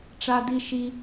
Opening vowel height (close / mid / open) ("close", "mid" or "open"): open